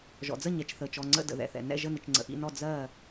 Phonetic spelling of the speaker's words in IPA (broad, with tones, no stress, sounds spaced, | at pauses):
ʒ ɔ̰˩ d͡z ə˥˩ ɲ ɛ˩ t͡ʃ θ əː˩ t͡ʃ ɔ˥˩ ŋ͡ǀ ə̰˥˩ d ə̰˩ ð ɛ̰˩ θ ɛ̰˩ n ɛ̰˥˩ ʒ ə˥˩ n ɪ˩ t͡ʃ ŋ͡ǀ ə̰˩ ʔ ḭ˥˩ n ɔ˥˩ d͡z ɜː˥˩